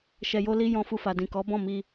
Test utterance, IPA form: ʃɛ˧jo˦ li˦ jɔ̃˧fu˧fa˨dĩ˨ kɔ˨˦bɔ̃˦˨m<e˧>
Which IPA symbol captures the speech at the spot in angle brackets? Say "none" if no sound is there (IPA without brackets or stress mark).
i˧